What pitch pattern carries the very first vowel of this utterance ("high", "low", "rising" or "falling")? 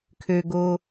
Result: low